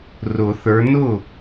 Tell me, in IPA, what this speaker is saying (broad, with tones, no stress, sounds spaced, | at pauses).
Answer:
r ʊ˨˩˦ θ ə˞˨˦ n ʊ˥˩